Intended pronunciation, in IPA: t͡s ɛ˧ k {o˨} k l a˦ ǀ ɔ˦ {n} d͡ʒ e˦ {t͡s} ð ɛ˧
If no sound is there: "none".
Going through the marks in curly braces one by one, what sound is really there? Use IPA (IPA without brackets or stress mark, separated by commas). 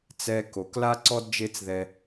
o˨, d, t͡s